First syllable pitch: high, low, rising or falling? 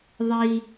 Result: low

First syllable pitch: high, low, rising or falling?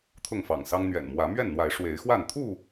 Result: falling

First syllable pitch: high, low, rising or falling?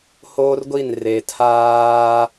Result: high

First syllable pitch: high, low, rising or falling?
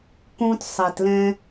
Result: high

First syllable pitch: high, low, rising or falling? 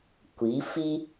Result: rising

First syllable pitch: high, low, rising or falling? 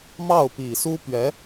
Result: falling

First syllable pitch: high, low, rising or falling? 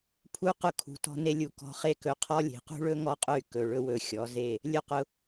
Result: high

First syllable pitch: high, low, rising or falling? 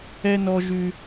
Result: high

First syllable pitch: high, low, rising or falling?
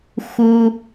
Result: low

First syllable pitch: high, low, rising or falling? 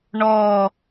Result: falling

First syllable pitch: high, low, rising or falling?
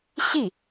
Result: falling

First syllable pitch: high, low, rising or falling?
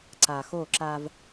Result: low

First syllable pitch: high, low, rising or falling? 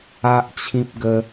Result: high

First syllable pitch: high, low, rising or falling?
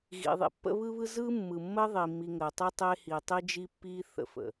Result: low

